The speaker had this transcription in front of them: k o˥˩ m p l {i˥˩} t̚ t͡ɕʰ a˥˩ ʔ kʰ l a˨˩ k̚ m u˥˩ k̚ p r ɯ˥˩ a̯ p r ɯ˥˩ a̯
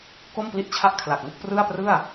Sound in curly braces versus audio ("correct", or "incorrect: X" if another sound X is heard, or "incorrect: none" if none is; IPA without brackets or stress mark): correct